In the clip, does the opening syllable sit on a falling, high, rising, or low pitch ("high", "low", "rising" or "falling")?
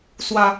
low